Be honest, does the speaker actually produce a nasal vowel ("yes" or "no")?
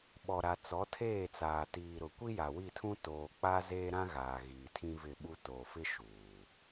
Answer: yes